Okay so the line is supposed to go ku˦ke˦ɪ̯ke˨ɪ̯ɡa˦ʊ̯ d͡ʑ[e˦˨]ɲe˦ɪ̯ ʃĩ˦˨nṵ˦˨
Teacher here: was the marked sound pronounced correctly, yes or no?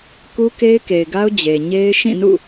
no